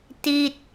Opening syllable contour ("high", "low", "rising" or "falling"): falling